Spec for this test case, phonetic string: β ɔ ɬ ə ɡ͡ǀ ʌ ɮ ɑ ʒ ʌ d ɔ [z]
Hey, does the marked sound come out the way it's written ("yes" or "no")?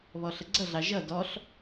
no